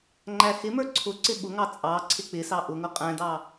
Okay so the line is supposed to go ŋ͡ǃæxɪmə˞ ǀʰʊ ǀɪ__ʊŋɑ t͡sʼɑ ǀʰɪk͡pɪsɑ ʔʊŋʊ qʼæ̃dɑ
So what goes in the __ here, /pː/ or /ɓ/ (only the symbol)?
ɓ